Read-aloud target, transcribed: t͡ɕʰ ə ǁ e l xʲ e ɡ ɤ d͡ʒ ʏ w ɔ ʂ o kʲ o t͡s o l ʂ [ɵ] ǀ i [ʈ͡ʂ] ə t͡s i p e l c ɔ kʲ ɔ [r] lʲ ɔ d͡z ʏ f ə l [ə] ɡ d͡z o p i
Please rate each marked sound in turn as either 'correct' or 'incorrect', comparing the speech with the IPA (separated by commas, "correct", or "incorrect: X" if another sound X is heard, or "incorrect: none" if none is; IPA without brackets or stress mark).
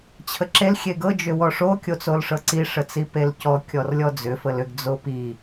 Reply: incorrect: ɤ, incorrect: ʂ, correct, incorrect: ʏ